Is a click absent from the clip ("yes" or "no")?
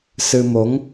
yes